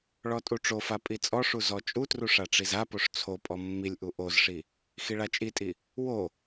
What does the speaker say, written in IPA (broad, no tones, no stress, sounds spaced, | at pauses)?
ɭ ɔ tʼ u ʈ͡ʂ o f a pʼ i t͡sʼ ɔ ʂ u z ɔ t͡ʃʼ u t r u ʂ a ʈ͡ʂ i z a p o ʂ t͡sʰ o pʼ ɔ mː i lʲ ʔ u ʔ o z ʂ i | x i ɭ a t͡ʃʼ i tʼ i | w o